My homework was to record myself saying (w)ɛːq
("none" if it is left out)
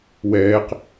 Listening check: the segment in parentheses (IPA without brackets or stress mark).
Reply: w